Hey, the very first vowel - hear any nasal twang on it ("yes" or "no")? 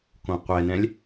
yes